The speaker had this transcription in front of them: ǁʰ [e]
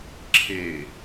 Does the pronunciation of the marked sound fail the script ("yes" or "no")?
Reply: no